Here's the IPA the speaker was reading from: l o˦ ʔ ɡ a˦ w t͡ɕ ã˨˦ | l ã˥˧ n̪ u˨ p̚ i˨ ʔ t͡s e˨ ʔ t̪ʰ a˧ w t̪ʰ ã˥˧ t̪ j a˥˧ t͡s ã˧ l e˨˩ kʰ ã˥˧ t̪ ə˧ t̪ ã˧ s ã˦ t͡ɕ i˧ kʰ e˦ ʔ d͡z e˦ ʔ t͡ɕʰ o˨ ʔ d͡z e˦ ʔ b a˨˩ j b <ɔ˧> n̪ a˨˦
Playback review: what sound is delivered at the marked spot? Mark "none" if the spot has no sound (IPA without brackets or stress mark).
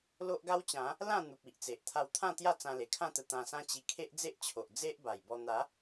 ɔ˧